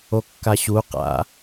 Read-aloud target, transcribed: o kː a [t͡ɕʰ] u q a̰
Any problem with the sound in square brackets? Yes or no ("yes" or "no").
yes